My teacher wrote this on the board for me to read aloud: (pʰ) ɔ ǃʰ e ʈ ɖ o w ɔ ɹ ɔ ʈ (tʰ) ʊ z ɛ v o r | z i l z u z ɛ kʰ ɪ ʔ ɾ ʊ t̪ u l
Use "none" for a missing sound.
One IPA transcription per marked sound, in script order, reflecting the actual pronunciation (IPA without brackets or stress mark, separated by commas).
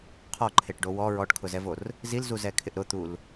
qʰ, kʰ